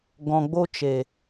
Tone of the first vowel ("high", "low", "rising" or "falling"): low